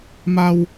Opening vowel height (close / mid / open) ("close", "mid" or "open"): open